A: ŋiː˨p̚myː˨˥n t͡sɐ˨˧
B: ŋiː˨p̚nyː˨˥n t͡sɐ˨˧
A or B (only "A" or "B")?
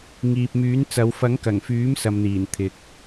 A